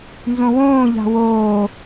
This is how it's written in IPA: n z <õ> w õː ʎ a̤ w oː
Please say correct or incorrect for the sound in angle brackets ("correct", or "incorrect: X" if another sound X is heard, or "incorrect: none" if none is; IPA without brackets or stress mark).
correct